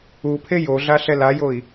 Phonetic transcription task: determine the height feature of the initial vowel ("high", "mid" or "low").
high